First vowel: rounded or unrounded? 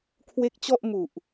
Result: unrounded